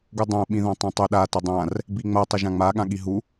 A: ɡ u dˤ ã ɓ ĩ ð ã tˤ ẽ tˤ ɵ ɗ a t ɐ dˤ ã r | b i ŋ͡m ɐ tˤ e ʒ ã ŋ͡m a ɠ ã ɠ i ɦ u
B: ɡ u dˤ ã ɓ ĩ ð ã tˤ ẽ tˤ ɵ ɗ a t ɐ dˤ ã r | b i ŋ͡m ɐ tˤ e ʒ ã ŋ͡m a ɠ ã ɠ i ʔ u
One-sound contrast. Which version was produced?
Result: A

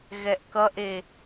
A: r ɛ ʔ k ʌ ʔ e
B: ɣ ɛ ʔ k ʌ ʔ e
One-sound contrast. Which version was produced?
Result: B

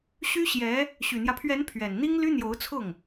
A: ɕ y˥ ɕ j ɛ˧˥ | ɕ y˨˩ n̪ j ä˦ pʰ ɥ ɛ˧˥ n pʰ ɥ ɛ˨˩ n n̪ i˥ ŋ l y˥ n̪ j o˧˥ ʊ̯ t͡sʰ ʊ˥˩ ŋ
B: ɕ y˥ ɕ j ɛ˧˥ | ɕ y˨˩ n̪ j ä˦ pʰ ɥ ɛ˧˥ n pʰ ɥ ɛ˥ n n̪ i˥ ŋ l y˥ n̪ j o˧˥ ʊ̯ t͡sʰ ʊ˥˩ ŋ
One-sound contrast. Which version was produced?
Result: A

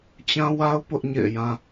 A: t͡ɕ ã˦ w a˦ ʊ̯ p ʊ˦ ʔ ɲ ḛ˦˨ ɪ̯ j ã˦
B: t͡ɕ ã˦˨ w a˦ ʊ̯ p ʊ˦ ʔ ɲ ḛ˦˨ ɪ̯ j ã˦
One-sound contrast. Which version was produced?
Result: A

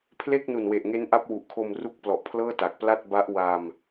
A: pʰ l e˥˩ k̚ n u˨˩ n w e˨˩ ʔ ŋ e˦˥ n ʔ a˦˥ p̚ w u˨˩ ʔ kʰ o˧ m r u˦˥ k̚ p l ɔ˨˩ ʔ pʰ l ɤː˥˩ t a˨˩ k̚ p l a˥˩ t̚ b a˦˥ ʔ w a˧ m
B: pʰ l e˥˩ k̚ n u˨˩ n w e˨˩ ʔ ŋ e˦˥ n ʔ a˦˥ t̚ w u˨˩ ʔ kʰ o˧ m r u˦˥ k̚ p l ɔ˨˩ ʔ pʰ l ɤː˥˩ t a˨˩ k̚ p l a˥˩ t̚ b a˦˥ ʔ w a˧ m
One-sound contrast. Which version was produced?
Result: A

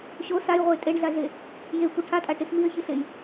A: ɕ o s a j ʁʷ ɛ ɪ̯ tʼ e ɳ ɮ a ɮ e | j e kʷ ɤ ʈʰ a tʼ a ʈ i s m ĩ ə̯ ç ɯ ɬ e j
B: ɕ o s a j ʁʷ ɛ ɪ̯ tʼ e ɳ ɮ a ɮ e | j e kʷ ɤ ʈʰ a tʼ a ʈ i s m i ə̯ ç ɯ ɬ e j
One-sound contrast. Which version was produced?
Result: B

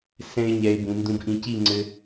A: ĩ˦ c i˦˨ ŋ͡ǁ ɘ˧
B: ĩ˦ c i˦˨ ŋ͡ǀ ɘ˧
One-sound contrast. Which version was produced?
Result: B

